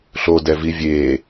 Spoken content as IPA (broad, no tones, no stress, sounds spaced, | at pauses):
ɬ o d ɛ v i vʲ e